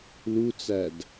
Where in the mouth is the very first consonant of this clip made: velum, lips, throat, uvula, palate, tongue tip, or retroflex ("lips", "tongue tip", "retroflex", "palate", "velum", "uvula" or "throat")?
tongue tip